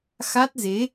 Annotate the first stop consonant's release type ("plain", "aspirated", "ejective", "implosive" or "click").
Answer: plain